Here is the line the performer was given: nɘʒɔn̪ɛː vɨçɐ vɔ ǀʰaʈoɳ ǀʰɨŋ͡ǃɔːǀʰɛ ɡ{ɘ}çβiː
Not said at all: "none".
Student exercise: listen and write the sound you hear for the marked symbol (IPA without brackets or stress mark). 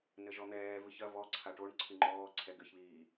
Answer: ɘ